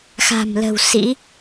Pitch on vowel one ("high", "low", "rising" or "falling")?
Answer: low